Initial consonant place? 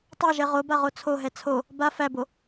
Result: alveolar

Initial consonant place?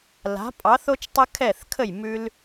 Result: alveolar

